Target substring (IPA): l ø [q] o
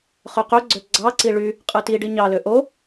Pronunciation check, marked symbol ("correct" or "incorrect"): incorrect